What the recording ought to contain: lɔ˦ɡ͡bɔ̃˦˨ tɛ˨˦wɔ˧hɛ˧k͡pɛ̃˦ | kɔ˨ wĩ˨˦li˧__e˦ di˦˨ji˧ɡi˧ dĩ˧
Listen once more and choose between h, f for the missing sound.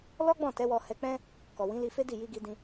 f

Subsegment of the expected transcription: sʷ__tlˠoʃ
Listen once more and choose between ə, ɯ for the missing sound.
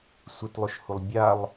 ɯ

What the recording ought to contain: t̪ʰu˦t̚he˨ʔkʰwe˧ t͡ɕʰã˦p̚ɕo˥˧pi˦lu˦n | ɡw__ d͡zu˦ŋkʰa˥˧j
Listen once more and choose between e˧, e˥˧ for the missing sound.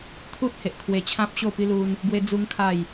e˧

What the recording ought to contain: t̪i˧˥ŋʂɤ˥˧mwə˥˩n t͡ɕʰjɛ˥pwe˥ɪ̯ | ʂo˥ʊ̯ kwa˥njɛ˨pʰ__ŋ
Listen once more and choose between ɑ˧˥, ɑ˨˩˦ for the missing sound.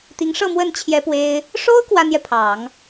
ɑ˨˩˦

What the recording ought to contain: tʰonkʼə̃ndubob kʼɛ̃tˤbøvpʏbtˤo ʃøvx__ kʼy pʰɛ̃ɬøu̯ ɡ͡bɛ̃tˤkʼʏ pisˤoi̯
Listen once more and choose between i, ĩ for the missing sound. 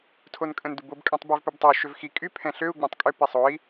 i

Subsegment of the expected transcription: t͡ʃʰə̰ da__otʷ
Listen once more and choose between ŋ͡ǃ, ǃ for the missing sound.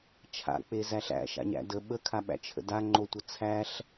ŋ͡ǃ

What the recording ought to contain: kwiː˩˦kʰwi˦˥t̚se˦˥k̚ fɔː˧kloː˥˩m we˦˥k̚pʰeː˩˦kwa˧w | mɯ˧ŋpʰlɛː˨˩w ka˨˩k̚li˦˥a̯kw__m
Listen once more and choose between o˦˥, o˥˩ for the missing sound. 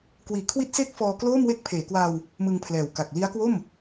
o˥˩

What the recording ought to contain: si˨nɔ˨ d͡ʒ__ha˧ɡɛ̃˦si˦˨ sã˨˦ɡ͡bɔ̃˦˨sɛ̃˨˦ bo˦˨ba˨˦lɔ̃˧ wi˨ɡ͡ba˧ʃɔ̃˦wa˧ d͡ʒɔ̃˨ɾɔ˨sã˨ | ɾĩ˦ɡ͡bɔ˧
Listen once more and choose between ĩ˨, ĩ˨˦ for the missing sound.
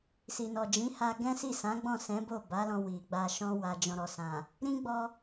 ĩ˨˦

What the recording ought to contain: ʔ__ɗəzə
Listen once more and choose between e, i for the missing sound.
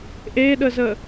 e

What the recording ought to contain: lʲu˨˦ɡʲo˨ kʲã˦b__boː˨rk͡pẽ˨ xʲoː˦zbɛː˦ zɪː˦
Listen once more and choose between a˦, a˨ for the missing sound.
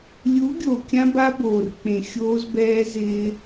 a˦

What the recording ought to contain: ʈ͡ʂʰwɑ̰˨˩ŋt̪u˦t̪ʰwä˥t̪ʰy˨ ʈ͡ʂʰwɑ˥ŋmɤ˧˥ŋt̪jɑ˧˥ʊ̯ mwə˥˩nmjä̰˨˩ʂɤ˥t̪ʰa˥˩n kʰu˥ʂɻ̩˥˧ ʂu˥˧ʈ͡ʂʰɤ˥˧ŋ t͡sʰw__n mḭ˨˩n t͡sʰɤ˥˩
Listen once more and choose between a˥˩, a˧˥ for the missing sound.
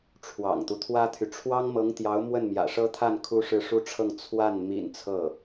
a˥˩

